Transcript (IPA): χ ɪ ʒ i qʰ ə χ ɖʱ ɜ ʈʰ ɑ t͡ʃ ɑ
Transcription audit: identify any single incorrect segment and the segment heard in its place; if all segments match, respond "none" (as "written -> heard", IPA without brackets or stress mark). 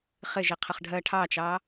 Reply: none